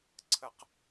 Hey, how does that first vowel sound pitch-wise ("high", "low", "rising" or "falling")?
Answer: high